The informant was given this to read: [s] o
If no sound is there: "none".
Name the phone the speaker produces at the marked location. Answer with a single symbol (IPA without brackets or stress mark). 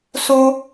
s